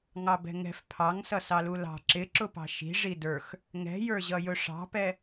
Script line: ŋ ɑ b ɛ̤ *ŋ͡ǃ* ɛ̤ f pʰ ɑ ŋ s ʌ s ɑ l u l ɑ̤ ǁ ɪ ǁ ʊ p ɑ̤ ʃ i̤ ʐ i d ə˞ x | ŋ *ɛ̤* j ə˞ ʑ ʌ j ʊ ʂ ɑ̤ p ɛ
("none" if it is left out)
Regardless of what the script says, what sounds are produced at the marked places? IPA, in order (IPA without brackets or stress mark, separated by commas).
ŋ, ɛ̤